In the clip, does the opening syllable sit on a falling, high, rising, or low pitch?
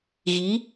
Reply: rising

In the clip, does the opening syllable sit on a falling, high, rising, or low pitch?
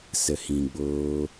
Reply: low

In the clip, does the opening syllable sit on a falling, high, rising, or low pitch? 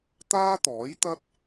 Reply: high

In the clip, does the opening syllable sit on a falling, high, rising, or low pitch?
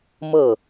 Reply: falling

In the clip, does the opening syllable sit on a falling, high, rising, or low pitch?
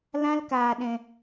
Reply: high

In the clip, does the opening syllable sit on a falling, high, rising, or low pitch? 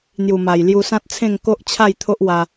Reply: low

